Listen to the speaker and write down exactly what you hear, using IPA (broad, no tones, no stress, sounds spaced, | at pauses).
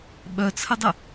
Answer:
ɓ œ t͡sʰ ə dˤ ə